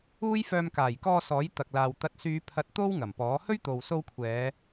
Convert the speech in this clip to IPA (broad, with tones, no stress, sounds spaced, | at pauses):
uː˥ j f œː˧ m k aː˨˩ j k ɔː˧ s ɔː˨˥ j t̪ ɐ˧ k̚ l aː˧ w t̪ ɐ˨˥ t̚ s yː˨˧ pʰ ɐ˨˥ t̚ t̪ o˥ w ŋ ɐ˨˩ m p ɔː˨˥ h ɵ˥ ɥ t̪ o˨ w s o˧ w kʷʰ ɛː˨˧